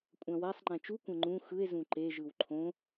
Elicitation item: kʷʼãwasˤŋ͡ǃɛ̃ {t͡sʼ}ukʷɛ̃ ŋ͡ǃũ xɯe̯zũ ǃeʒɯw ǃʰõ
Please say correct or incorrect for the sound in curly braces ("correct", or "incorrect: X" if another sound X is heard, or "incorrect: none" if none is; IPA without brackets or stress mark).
incorrect: t͡ʃ